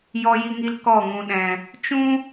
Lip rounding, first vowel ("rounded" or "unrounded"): rounded